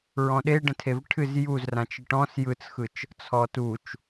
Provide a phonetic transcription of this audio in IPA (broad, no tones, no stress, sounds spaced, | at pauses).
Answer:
ɹ ɔ̃ ɗ e ɖ ə̃ tʰ e v ʈʰ ɨ z j u z r ã t͡ʃ ɨ ʈ ɔ̃ s j ɯ t͡s x ɯ t͡ʃ | t͡sʰ ɔ t u t͡ʃ